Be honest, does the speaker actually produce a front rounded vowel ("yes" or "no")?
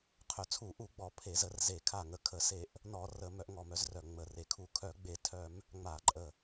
yes